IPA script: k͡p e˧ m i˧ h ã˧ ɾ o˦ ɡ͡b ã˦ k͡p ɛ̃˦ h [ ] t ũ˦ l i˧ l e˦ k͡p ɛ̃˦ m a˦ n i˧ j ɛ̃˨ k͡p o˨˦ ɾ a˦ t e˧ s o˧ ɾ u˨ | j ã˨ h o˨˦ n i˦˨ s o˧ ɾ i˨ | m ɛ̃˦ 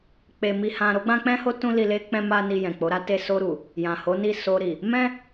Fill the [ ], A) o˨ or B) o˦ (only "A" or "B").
B